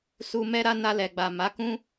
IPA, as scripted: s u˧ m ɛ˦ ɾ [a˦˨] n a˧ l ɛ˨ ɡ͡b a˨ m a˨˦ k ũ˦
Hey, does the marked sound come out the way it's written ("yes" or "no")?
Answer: no